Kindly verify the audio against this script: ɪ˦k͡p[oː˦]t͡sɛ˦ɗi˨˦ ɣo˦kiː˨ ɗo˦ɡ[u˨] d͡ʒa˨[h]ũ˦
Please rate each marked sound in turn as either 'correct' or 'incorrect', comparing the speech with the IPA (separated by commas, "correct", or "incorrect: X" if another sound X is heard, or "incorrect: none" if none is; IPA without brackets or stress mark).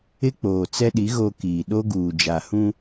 incorrect: oː˨, incorrect: uː˨, correct